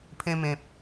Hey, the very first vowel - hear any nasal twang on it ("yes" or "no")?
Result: yes